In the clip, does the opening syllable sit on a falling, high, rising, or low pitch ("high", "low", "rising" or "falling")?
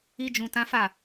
high